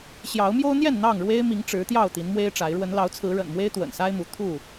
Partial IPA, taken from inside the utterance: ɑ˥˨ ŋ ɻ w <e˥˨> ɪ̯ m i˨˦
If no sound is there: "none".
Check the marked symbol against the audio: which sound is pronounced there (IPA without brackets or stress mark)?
e˦